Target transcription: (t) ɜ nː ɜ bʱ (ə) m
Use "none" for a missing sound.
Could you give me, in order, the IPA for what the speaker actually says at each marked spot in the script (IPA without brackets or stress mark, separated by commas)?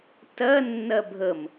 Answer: t, ə